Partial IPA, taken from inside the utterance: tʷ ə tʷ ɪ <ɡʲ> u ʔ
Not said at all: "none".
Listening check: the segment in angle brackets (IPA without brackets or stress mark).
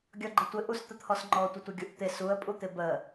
ɡʲ